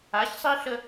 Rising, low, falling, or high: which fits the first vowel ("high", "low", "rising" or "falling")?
rising